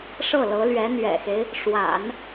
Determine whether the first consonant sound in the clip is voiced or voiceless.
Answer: voiceless